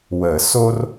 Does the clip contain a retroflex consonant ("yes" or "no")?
no